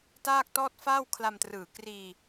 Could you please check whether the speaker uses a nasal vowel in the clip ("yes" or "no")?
no